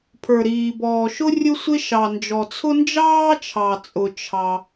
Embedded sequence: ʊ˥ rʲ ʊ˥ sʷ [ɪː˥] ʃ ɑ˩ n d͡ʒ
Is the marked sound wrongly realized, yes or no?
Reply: yes